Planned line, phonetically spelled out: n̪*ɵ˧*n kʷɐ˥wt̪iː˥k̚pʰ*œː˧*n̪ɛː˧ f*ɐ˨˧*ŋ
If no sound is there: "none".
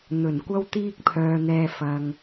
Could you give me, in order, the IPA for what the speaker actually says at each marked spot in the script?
ɵ˨˩, œː˧, ɐ˨

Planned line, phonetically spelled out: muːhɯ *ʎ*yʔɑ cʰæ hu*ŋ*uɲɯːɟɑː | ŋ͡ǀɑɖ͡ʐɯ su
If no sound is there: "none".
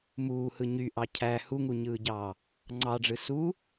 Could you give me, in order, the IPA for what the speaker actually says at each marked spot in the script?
ɲ, ŋ

